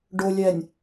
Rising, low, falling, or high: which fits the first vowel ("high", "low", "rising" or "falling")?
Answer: low